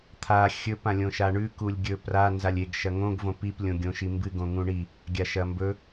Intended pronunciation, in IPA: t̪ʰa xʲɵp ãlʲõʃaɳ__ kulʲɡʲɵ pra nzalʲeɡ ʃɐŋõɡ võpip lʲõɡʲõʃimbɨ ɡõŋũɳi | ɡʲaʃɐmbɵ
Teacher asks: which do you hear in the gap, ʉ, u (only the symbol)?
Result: ʉ